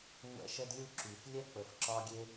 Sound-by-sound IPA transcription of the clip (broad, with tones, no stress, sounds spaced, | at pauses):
ŋʷ ɛ̰˧ ʃ ɛ˧ d lʲ u˧ ǁ y˨ f lʲ ɛ˦ k͡p ə˨ f ǁ ɒ˦ ɡʲ e˦